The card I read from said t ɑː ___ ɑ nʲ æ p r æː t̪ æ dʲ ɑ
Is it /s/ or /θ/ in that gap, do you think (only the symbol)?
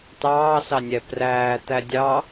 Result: s